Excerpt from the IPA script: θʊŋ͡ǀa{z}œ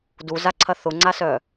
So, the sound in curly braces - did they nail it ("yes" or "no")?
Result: no